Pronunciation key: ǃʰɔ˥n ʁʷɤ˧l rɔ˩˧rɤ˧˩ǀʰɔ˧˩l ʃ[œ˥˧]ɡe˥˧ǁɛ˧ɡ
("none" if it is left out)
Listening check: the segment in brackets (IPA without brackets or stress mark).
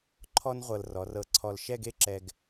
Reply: ɛ˥˧